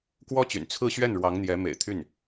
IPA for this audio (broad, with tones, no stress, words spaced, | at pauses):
kwɔ˥t͡ɕy̰˨˩n t͡sʰɹ̩˥˧ɕɥɛ˥˩n ɻwɑ˧˥ŋn̪jɛ˧˥ mḛ˨˩ɪ̯t̪ʰy˥˩n